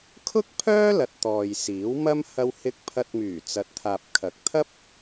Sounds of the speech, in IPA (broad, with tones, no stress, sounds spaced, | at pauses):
kʰ ʊ˥ k̚ pʰ œː˥ l ɐ˧ t̚ t̪ ɔː˨ j s iː˨˥ w m ɐ˥ m h ɐ˥ w h ɪ˥ k̚ pʰ ɐ˧ t̚ m yː˨˩ t͡s ɐ˨ t̚ t̪ʰ aː˨ p̚ kʰ ɐ˨˥ k̚ t̪ʰ ɐ˥ p̚